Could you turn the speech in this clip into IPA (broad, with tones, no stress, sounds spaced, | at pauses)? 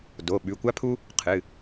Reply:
d o˩˧˩ ɓ ʉ˩˧˩ kʷ a˥ pʰ u˥ | qʰ ɨ˩˧˩